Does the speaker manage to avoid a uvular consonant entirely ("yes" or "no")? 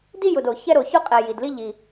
no